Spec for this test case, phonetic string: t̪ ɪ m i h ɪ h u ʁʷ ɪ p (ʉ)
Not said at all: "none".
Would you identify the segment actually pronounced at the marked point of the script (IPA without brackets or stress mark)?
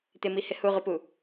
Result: u